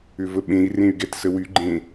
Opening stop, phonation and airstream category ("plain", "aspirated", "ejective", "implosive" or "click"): implosive